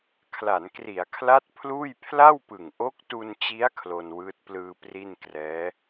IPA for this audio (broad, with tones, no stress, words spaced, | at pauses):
kʰla˩˦nkri˩˦a̯kʰla˦˥t̚ pʰluː˥˩j pʰla˥˩wpɯ˨˩ŋ ʔo˦˥k̚tu˧nt͡ɕi˦˥a̯ kʰlo˧nwɯː˦˥t̚plɯː˧ pri˥˩nkrɛː˦˥